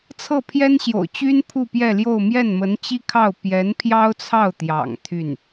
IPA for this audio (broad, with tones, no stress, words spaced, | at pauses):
t͡sʰɤ˥˩pʰjɛ˥nɕjo̰˨˩ʊ̯t͡ɕy˥n pʰu˥˧pjɛ˥˧ljo˥˧ʊ̯ mjɛ˥˩nmə˧˥nt͡ɕi˥kʰɑ˥˩ʊ̯ pjɛ˧˥npʰjɑ˥ʊ̯t͡sʰɑ˥˩ʊ̯t̪jɑ̰˨˩ŋ t̪ʰy˥˩n